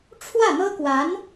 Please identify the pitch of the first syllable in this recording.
falling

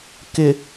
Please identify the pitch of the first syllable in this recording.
low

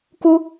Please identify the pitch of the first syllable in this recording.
high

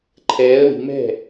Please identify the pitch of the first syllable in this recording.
rising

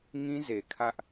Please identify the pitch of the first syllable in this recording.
high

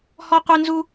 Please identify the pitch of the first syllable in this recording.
high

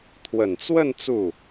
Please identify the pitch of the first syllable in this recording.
low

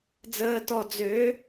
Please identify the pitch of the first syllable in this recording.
low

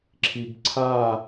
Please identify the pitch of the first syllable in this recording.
low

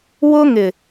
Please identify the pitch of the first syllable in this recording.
high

